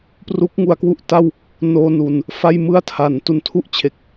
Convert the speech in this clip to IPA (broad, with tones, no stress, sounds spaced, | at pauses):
p r u˦˥ k̚ ŋ u˧ a̯ k w u˥˩ ʔ t a˥˩ w | n oː˧ n u˨˩ n | f a˥˩ j m ɯ˥˩ a̯ tʰ a˩˦ n t u˨˩ n tʰ u˦˥ ʔ t͡ɕʰ e˨˩ k̚